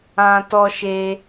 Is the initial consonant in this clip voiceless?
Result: yes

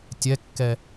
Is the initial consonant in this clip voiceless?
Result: yes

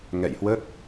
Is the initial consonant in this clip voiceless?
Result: no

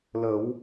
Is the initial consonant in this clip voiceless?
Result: no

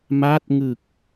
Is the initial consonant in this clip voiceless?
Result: no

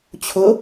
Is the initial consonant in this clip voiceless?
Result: yes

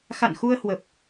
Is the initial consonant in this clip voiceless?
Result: yes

